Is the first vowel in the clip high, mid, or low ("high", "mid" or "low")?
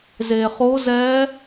mid